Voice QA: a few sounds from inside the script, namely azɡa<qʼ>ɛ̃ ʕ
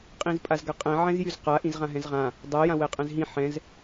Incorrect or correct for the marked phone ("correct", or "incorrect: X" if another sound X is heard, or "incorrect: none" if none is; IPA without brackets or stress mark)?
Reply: correct